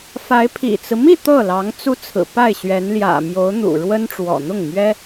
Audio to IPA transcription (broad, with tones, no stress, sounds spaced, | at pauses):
f a˧˥ ɪ̯ pʰ ḭ˨˩ t͡s ɹ̩˦ m i˥˧ t̪ ɤ˥˩ l ɑ˧˥ ŋ t͡s u˥ t͡sʰ ɹ̩˨˩ p a˥˩ ɪ̯ ɕ ɥ ɛ˧˥ n l j ä̰˨˩ m j o˧˥ ʊ̯ n̪ ṵ˨˩ ɻ w ə˥ n ʈ͡ʂ w ɔ̰˨˩ n̪ ʊ˥˩ ŋ m ɥ ɛ˥